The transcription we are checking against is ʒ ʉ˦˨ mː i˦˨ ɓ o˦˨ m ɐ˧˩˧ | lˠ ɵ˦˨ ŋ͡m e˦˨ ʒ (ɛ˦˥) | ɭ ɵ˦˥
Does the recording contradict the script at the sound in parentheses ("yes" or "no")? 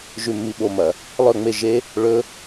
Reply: yes